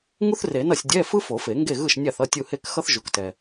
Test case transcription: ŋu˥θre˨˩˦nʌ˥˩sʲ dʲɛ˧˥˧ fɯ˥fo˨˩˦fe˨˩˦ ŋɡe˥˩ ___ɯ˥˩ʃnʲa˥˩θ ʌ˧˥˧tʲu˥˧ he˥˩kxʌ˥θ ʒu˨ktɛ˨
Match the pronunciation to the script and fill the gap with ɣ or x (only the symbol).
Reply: ɣ